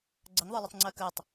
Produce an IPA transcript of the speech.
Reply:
ɡ͡ǀəŋðˤə˞lˠətˤ ŋ͡ǀɜkɜtˤ

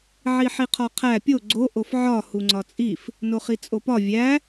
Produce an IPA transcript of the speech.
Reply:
ʕiħiqʰɒqʰæ pʲo ɡ͡ǀo ʔofʕɒ huŋ͡ǀɒt͡sʼif | noχit͡sʼopɒ vʲæ

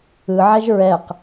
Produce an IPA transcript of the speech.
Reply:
ɯʕɛʒ ɹɛq

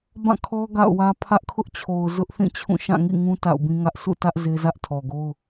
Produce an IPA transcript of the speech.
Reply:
bã˦˨kʰɔ˦ ɡa̰˦˨ʊ̯wä˦ pʰä˦ʔkʰʊ˦ʔt͡ɕʰo˨ʊ̯ zʊ˦ʔ θĩ˦˨t͡ɕʰũ˦˨ ʃã˦˨ŋḭ˦˨ŋũ˦ ta̰˦˨ʊ̯bĩ˦ŋä˦ʔ sʰṵ˦˨tä˦ʔ ze˦zä˦ʔtʰɔ˨ɡo˦ʊ̯

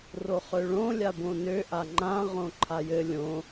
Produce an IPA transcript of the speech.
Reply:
roχøɭõ lʲabõnø ʔaŋ͡ǃã ʁõǃʰajɘ lʲõ

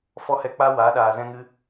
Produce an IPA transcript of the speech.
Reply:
fɔ˦hɛ˧ k͡pa˦ waː˨˦ɗaː˨ zɛ̃˦ ŋɨ˦

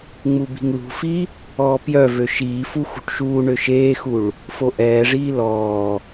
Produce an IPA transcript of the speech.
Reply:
ŋ͡mubi̤ŋlṳfi | ɔːpjœvø ʃiːfu xṳʈʃuːɳø ʃeːxuɭ | foʔɛːʐiː lɔː

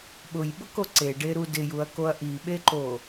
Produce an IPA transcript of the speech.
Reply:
ɓʊjɓʊko ǀeɖeɾu dɪjuɐ̯koɐ̯ ʔiɓeǃo

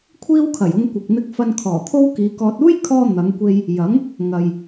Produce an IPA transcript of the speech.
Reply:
kʷʰiː˥wkʰɐ˨˩jʊ˧ŋ kʷɪ˨k̚n̪ɪ˧k̚ fɐ˧nkʰɔː˨˩t̪ʰo˥w kiː˨˧kɔː˧t̚ uː˥jkʰɔː˧ n̪ɐ˨˧ŋkʷe˧j | jɐ˨˥ŋ | ŋɐ˨j

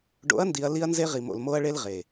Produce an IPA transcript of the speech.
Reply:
ɖo̰˨˦ɐ̯ndi˨ɐ̯ li˦ɐ̯nze˦ʁi˨mo̰˨l mo˦ɐ̯ɭe˦l ʁe˨

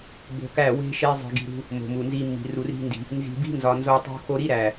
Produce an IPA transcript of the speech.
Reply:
bo̤˧kæ˦˨ we̤˦ ʃe˧zˤe̤˨ ɡi̤˨ɾṳ˧ | mo̤˨mu˨nzi˧mːi̤˨ ru˨ri̤˧ndi̤˨ | nzi̤˨bi̤˦nzɒ˨nzo˧ tˤṳ˧xo˧ɾi˦ɾæ˨

